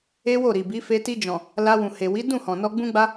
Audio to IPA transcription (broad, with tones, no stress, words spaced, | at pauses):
e˦wo˦˨ɾi˨bi˨˦ fe˧ ti˧d͡ʒɔ̃˨ | la˧ wũ˨he˨ wi˨˦dũ˦˨hɔ̃˨nɔ˧ ɡ͡bũ˦ɡ͡ba˦